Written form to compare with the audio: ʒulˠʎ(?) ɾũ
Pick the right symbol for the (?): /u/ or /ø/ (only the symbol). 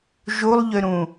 ø